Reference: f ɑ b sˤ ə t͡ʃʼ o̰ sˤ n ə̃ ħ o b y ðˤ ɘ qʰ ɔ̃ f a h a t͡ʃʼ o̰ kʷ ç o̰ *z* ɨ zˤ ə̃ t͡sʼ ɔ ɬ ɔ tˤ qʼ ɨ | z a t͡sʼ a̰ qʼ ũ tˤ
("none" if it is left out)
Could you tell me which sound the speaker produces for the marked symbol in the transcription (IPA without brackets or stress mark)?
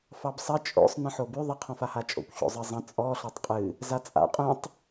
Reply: zˤ